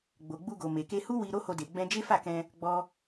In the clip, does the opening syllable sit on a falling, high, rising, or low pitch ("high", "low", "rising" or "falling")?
low